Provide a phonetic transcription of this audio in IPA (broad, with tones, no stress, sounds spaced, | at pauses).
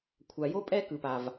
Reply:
kʷʰ a˨ j o˦ pʼ ɛ˦ k ɯ˨ p a˨ v